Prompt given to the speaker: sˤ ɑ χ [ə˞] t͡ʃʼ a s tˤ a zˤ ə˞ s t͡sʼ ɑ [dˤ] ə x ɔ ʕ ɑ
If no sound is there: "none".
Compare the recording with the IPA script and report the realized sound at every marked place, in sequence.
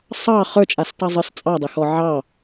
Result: ə˞, dˤ

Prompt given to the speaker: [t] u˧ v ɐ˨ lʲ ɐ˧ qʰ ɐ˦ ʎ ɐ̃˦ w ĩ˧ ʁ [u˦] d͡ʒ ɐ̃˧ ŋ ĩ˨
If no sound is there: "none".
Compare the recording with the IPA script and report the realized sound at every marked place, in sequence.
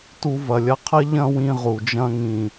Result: t, u˨

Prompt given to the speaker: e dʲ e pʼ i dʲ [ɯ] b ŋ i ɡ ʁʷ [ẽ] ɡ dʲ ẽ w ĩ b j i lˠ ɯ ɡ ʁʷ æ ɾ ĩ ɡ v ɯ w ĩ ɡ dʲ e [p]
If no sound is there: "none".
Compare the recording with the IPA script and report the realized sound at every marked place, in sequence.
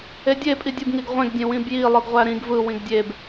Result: ɯ, ẽ, b

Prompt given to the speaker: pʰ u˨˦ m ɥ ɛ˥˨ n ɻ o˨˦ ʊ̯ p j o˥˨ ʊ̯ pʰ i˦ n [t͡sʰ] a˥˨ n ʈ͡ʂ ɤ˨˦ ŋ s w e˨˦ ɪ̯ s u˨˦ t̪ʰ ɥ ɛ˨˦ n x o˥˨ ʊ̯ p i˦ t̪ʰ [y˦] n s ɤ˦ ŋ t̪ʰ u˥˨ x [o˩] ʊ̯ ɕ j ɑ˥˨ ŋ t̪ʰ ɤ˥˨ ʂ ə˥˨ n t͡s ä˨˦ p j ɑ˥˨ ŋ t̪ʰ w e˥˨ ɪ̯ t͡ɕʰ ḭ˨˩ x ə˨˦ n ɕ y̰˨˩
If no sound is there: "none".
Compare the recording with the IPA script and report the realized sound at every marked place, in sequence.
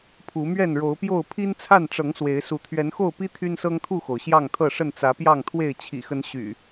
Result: t͡sʰ, y˦, o˩

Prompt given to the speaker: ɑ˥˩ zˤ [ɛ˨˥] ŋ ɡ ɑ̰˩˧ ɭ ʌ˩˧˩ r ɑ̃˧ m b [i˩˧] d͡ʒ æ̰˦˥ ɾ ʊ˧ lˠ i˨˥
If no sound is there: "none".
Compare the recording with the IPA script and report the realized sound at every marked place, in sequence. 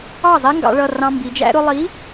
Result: ɛ˦˥, i˩˧

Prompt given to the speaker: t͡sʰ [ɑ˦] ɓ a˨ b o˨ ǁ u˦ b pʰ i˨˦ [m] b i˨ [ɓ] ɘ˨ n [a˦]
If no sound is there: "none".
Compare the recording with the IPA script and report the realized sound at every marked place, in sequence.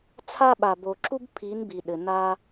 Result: a˦, n, ɗ, a˦

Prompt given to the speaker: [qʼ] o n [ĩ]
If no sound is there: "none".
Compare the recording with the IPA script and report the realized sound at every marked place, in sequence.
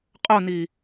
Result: qʼ, i

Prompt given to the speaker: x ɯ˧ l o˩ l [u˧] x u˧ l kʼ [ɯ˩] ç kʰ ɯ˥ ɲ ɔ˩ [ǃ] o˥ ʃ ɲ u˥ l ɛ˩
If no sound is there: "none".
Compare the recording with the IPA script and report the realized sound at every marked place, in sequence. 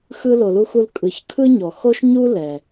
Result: u˧, ɯ˩, x

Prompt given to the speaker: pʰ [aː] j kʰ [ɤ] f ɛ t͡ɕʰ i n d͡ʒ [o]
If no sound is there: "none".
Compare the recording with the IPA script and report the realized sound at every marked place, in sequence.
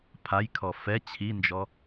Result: a, ɔ, ɔ

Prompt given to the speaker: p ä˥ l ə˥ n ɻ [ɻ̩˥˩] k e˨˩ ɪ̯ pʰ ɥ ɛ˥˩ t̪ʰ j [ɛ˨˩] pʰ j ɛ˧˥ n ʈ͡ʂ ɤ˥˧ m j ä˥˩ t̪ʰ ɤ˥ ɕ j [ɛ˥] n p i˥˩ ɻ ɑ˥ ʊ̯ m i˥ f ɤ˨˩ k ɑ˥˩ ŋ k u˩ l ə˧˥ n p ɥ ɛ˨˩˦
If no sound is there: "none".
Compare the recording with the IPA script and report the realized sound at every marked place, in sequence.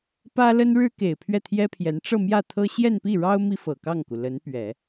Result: ɻ̩˥, ɛ˥, ɛ˥˧

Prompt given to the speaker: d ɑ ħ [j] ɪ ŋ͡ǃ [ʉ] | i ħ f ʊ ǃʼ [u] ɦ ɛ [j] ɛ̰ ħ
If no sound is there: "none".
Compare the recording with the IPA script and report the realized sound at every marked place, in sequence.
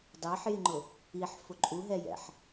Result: j, ʊ, u, j

